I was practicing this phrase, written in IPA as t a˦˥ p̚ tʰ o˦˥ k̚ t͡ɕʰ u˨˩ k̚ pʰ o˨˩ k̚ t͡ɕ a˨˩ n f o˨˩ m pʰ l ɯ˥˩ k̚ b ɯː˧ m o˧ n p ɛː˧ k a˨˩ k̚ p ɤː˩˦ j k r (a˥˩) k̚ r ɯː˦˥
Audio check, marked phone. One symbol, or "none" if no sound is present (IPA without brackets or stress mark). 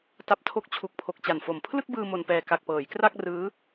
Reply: a˥˩